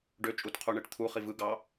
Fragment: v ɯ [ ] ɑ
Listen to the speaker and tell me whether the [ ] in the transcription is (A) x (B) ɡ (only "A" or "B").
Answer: B